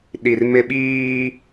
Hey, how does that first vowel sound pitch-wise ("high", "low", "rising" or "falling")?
low